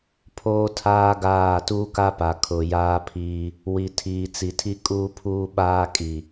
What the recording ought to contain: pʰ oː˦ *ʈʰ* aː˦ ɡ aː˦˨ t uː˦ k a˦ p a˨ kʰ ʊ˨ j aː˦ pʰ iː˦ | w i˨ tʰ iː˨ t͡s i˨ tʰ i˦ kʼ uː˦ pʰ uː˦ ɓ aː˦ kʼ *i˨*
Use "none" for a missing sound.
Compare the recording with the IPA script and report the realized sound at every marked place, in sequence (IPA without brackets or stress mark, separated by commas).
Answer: tʰ, i˨